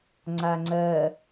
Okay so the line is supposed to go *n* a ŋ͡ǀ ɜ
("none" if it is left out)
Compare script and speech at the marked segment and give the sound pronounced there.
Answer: ŋ͡ǀ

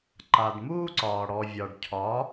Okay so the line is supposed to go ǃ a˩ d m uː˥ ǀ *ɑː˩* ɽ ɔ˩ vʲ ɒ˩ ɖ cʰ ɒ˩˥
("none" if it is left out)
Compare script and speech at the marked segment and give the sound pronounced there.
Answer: ɒː˩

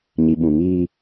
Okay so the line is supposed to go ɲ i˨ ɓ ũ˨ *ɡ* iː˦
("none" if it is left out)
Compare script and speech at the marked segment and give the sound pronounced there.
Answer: ŋ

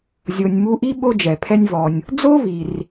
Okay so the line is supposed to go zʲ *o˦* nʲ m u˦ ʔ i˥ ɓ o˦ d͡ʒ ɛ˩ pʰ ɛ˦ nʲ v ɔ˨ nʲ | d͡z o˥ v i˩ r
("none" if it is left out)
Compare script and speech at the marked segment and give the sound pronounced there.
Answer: o˨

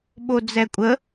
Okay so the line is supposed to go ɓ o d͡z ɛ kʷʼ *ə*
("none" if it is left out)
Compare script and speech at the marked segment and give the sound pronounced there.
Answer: ə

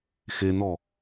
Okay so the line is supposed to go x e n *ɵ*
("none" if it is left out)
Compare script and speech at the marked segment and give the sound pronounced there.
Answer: ɔ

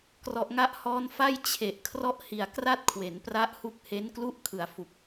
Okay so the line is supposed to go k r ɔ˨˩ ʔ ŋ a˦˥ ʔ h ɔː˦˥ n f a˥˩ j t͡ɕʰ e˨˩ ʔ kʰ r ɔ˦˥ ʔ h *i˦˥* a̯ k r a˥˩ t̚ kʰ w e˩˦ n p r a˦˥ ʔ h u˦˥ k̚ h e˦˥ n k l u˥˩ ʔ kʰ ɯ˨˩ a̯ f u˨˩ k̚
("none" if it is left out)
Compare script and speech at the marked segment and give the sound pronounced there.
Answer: i˨˩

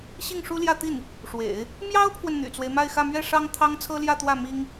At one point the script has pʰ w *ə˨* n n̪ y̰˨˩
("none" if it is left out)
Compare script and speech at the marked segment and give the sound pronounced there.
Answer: ə˨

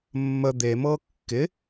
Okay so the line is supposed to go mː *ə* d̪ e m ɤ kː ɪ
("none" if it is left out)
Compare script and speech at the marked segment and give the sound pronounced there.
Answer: ə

